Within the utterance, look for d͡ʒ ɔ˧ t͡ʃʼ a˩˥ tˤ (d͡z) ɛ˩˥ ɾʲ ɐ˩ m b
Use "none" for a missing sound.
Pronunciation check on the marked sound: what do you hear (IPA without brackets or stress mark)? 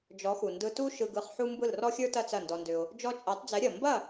d͡z